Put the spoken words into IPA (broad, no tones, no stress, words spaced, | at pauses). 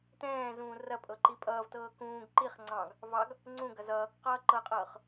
tɛ̃ːzũː rɐpʼɤ ǃipʼʌːvtɤː kũːɡ ǃiχ ŋ͡ǀɑ̃ɡ | vɑɡ | ŋ͡ǀũ ɡɐzʌːkqʌː ǃɤqʼɤːχ